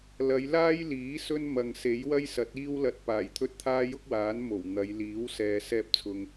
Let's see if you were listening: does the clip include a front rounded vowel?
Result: no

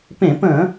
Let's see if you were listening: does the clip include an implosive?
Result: no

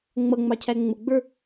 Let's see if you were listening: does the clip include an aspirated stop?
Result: yes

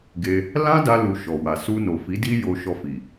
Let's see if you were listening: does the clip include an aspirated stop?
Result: no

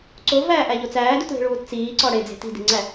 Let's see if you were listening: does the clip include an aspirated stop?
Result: no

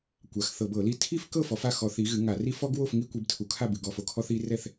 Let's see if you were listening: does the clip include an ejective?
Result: no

